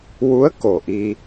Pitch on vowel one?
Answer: rising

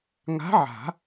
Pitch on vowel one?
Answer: rising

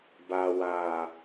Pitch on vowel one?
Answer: low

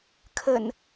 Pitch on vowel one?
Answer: low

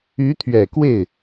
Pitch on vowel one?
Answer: rising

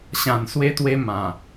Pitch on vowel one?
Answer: low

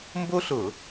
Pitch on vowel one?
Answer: high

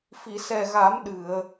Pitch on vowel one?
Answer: low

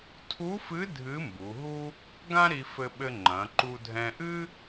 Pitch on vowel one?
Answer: rising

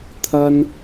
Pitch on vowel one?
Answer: high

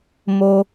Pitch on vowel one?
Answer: low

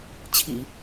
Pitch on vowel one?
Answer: low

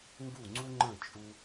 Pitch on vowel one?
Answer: falling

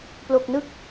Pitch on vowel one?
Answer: low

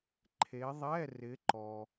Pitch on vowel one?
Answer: rising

